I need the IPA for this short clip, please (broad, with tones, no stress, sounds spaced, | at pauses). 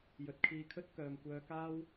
j ɵ˨˥ t̚ kʰ iː˧ kʰ ɵ˥ t̚ k œː˨ m kʷ œː˧ k aː˥ w